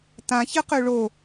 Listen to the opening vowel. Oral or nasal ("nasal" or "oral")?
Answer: nasal